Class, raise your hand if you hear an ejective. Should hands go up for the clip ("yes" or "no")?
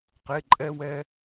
yes